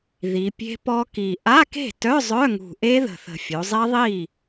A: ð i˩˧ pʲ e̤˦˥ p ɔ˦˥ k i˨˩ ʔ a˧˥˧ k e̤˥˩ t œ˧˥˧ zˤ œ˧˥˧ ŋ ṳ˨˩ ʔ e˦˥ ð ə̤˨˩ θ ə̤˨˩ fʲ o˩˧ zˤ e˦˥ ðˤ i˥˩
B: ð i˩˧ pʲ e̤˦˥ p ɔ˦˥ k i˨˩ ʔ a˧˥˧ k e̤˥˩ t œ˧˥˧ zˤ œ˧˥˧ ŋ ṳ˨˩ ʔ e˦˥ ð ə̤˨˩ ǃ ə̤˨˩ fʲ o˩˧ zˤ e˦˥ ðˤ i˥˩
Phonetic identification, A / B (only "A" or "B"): A